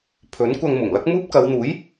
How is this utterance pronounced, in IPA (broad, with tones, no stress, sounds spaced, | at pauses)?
pʰ ɵ˨˥ n kʷ ɐ˧ ŋ m ʊ˨˩ ŋ l ɐ˥ k̚ m uː˥ p̚ k ɐ˨˧ w n̪ uː˨˥ j